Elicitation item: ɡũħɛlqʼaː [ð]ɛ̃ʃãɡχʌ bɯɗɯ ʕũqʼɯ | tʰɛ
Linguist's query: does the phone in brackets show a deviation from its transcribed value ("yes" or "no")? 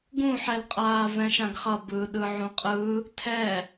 yes